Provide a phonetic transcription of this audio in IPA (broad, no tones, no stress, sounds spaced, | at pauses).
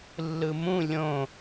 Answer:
lː ɯ m ũ lʲ õ